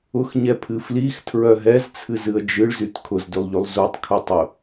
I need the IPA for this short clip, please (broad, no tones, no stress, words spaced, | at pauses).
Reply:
ʊxɲɛpʰɨ flixtʰɹœ ɦɛzt͡sʰɨzɨə̯ d͡ʒɨɭzyt kʰʊzdylˠʎylˠ zutˤkʰutˤʊ